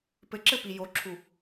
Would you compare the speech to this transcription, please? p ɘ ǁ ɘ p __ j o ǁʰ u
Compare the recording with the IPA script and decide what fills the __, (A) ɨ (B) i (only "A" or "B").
B